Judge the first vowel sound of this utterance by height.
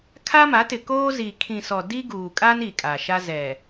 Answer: low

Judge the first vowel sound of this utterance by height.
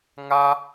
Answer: low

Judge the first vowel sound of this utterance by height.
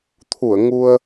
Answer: high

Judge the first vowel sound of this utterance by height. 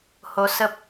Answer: mid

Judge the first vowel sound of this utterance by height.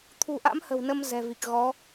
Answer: high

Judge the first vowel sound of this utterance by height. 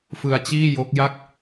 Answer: high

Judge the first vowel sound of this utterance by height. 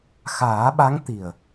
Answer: low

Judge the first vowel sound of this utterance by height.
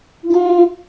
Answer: high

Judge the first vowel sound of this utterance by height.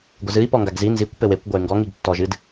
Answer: mid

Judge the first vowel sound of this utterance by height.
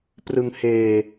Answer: high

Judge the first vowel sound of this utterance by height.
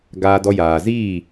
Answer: low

